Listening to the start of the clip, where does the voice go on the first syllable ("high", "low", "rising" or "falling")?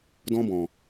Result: high